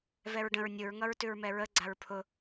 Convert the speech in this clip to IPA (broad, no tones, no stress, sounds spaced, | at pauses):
v ɛ ɹ ɖ ə̃ ɹ nʲ ʊ ɹ ŋ ʌ ɹ t ʉ ɹ m ɛ ɹ ə ɡ͡ǀ a ɹ pʰ ʊ